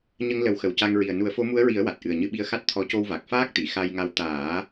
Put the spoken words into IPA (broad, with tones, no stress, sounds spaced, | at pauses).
ɲ ə˧ ŋ l ə˨˩˦ w x ə˨˩ w c a˧ ŋ ɹ i˨˩ ə̯ n u˨˩˦ ə̯ f o˧˥ m u˧˥ ə̯ ɹ i˨˩˦ ə̯ w a˨˩ t̚ ʔ ɨ˨˩ ə̯ ɲ ɨ˧ ɓ i˧ ə̯ x a˦˥ t̚ t̪ʰ ɔ˧˥ c o˧ w v a˨˩ k̚ f aː˦˥ k̚ t̪ i˨˩˨ x a˧ j ŋ a˧ w t̪ aː˨˩˦